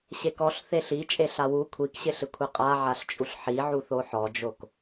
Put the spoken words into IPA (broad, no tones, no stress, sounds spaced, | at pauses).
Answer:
ɕ e k ɔ ɬ θ e ɬ i t͡ʃʼ e ɬ a w u kʷʰ i k ɕ ɪ ɬ ɪ kʷʰ e qʼ a ʕ a ɬ t͡ʃʼ u ɬ ħ i ʕ u θ o ħ ɔ d͡ʒ o k